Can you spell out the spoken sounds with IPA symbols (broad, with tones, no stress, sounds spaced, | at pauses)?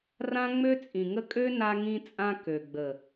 r ã˦ ŋ͡m ø˦ t͡sʼ ĩ˨ ŋ ə˦ kʼ ø˦ n a˧ ŋ ĩ˧ t͡sʼ ã˧ k ø˨ ɡ͡b ə˨